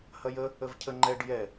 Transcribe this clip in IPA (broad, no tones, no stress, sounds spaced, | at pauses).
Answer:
h ɐ j ə | ə v cʰ ə ŋ͡ǃ ɛ ɖ j ɛ